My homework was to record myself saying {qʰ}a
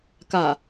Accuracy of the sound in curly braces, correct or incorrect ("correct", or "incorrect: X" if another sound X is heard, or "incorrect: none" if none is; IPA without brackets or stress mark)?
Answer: incorrect: k